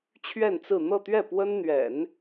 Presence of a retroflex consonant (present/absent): absent